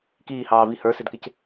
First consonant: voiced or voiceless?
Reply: voiceless